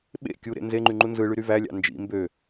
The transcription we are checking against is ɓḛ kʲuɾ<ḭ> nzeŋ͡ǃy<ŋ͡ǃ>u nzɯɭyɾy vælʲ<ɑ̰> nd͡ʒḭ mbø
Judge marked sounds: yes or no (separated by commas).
no, yes, yes